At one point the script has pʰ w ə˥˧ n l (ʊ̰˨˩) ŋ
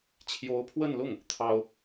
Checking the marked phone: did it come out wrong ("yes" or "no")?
yes